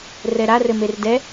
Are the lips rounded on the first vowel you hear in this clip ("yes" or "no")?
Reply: no